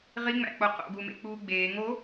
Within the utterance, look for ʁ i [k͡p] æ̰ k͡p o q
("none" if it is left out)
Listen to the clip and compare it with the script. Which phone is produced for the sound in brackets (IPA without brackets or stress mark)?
ŋ͡m